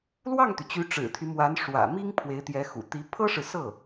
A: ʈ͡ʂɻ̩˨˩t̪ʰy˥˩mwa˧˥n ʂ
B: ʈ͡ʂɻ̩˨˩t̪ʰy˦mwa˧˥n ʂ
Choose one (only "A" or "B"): B